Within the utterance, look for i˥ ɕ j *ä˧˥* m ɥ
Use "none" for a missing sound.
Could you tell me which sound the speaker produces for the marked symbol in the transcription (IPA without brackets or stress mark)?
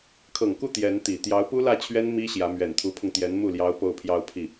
ä˧˥